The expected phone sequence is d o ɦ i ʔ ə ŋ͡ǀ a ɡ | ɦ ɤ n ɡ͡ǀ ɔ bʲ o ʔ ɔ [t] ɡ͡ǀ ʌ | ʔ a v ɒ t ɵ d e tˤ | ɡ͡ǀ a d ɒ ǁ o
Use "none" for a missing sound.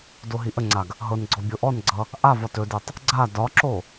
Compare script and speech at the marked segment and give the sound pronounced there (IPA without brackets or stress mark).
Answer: n